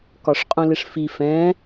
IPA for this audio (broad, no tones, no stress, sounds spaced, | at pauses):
k ɒ ʂ qʼ ũ l ɪ ʂ f i f ɛ̃